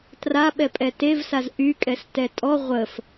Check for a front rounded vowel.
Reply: present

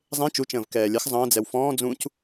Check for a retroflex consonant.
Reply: absent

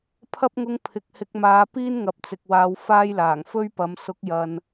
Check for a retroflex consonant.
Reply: absent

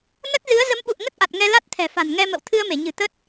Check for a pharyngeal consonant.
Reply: absent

